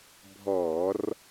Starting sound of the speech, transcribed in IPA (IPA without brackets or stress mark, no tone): bʱ